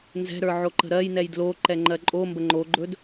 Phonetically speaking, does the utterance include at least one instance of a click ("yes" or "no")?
yes